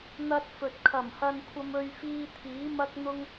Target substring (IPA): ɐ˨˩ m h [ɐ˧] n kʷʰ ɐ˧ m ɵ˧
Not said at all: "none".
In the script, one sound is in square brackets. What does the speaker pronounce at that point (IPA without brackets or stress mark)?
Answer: ɐ˧